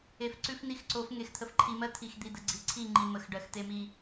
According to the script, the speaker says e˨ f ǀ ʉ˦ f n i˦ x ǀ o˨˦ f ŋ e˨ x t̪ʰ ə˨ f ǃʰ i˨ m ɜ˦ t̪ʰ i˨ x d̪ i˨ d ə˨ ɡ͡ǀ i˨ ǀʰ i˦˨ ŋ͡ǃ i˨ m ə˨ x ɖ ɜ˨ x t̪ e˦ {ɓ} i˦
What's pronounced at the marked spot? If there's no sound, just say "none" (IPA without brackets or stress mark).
m